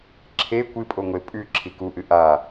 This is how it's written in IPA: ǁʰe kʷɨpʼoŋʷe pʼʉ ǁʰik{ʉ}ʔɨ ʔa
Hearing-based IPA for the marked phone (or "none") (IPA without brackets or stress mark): u